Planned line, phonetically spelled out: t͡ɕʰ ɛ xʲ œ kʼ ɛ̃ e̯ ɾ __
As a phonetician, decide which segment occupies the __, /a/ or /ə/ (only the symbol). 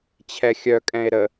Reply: ə